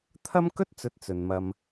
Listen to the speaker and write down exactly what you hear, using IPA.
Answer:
t̪ʰɐ˥mkɵ˥t̚t͡sɵ˨˥t̚ t͡sɵ˨nmɐ˧m

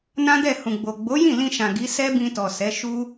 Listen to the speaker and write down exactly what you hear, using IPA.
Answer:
nã˦dɛ˦˨ hũ˨ɡ͡bo˨ ɡ͡bo˨˦jĩ˦˨ lĩ˧ʃã˨ ɡi˨˦ sɛ˦bĩ˧tɔ˨ sɛ˨˦ ʃu˦

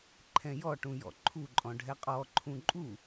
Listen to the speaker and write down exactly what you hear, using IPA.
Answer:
ǃʰɛ̃jɔʈũ jɔ̰ǃʰuǃʼɔ̃ ɖʱɛqʼɔǃʰũ ǃʼu

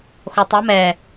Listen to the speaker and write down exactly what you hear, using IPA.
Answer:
xotˤa mɛ

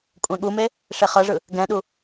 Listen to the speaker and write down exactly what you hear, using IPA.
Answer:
kʷʼɛ̃ɠume | ʂeχɤʐɯ | ɡɛ̃ɗu

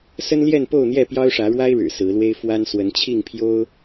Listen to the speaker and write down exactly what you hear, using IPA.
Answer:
sə˦nljɛ˥˨npo˥˨ʊ̯n̪jɛ˥˨ pjɑ˦ʊ̯ʂä˨˦ɻwa˦ɪ̯ɻɻ̩˨˩ sɹ̩˨˦lwe˦ɪ̯ fwa˦n swə˨˦nt͡ɕʰi˥˨ŋpʰjo˦ʊ̯

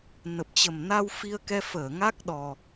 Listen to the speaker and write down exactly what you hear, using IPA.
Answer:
nə˨˩p̚t͡ɕə˨˩mna˧w fi˧ə̯kɛ˧ fəː˧˩ ŋa˦˥k̚ɗɔ˨˩

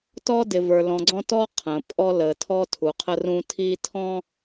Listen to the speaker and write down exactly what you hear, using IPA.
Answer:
tɔː˦dɪ˨və˞˨ lɔ̃˨ɡ͡ǀɔ̃˦tɔː˦ qʰə̃ː˨ pʼɔ˦ləː˨ tʰɔː˦tʰu˨qʰə˦rũː˦ tʰi˦tʰɔ̃˦

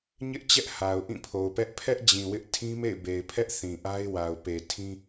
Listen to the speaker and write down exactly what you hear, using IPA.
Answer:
ɲɪ˦ʔ t͡ɕɛ˦ʔ ha˨ʊ̯ ʔĩ˦˨pʰo˨ʊ̯pɛ˦ʔ pʰɛ˦ʔ d͡ʑĩ˨wɪ˦ʔ tʰĩ˦mḛ˦˨ɪ̯be˨ɪ̯pʰɛ˦ʔ θĩ˨ʔa˦ɪ̯wa˨ʊ̯ pe˨tʰĩ˦

